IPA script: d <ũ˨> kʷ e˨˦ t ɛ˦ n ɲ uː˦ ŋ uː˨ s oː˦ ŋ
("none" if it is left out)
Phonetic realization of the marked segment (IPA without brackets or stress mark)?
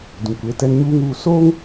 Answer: ũ˨